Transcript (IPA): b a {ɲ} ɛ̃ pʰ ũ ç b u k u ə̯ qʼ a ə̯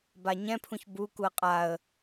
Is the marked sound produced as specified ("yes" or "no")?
yes